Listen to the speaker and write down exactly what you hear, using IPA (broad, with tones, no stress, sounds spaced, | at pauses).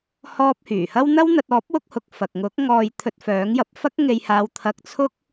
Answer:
h ɔː˧ p̚ h yː˨˩ h ɐ˥ w n̪ ɐ˥ w n̪ ɐ˧ t̚ ɔː˨˥ p̚ w ʊ˧ k̚ h ʊ˨ k̚ f ɐ˨ k̚ ŋ ʊ˨˥ k̚ ŋ ɔː˨ j t̪ʰ ɵ˧ t̚ f œː˨˥ ŋ j ɐ˧ p̚ f ɐ˥ k̚ ŋ e˧ j h aː˧ w t̪ʰ ɐ˧ k̚ t͡sʰ ʊ˥ k̚